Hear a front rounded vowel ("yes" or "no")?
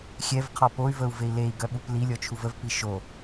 yes